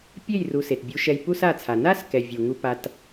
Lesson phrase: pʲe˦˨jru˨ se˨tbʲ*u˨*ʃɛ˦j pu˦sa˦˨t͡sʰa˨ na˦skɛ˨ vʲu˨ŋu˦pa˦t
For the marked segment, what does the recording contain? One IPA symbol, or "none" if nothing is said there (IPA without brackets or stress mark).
u˦